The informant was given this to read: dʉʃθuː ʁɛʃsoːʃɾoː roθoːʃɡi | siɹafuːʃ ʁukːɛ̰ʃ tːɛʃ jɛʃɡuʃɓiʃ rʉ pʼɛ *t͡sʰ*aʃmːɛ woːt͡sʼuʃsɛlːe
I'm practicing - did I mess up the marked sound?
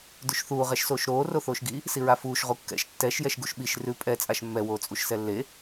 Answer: yes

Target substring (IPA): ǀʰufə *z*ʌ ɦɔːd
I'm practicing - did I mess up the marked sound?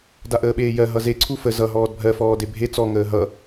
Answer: no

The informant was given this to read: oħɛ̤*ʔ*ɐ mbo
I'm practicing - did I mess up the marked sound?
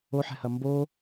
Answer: yes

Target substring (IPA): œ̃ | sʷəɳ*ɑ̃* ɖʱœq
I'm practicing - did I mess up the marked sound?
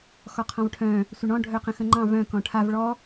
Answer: yes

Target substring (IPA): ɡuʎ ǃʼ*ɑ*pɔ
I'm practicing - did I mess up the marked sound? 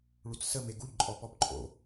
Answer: yes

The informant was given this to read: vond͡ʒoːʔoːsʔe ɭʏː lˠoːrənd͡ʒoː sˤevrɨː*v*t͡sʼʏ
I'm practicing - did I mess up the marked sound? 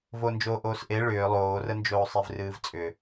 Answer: no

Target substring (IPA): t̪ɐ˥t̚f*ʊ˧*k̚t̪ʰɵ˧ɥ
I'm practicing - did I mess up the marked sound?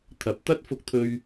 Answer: no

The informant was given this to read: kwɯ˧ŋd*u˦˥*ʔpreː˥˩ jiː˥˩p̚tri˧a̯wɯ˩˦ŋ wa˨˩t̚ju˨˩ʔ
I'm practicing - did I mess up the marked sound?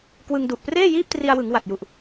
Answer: yes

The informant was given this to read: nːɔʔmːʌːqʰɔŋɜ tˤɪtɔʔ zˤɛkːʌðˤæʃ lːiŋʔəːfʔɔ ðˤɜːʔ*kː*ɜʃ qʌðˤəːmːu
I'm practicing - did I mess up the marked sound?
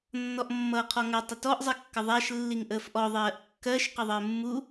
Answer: no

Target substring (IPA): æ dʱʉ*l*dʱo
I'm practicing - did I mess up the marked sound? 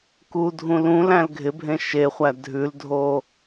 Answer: no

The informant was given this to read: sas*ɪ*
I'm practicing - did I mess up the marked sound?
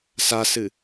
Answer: yes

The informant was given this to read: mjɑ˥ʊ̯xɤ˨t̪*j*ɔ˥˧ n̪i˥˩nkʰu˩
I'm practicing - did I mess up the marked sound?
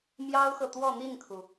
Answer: yes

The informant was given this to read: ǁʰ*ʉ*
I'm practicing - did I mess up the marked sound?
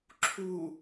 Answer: yes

